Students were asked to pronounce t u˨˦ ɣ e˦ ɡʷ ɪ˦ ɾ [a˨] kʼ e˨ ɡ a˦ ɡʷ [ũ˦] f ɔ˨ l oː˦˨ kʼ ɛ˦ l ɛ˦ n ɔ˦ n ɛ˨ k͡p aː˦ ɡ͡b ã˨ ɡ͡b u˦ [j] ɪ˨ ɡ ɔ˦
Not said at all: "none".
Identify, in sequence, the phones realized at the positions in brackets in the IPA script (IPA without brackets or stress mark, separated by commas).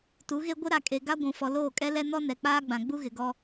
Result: a˨, ũ˨, ɣ